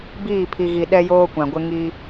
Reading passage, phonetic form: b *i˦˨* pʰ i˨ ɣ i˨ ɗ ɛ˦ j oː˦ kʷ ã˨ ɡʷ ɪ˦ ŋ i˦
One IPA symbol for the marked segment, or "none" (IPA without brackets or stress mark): iː˦˨